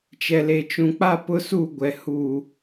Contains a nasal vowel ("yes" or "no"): yes